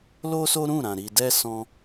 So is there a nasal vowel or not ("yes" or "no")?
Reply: yes